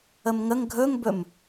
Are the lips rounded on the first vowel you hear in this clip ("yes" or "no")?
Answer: no